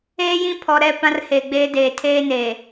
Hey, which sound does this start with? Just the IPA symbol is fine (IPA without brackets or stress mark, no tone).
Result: eː